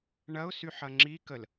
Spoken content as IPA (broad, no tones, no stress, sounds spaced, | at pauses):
ɳ ɐ ʊ̯ s y ħ ɐ ŋ͡ǁ i k ə l